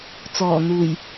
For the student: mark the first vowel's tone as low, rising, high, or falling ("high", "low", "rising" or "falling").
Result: low